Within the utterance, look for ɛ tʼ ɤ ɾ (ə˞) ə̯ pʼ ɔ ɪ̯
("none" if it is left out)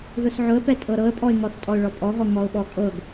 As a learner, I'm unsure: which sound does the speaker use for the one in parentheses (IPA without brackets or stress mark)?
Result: ɤ